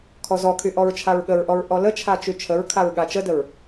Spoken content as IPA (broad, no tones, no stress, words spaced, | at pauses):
kʰɔzɔkʰy ʔɔɹt͡ʃʰaɹɠəɹʔɔɹ ʔɔlət͡ʃʰa t͡ʃyt͡ʃʰəɹkʰaɹ ɠat͡ʃədəɹ